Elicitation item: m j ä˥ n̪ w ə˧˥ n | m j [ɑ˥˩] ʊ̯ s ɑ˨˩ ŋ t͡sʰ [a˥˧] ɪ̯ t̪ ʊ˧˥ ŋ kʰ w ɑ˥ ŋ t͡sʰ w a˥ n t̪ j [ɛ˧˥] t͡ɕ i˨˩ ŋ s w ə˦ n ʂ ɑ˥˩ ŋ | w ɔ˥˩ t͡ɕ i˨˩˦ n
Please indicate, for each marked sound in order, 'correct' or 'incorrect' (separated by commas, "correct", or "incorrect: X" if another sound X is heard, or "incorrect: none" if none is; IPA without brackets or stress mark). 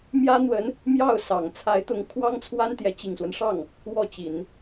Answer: correct, incorrect: a˧˥, correct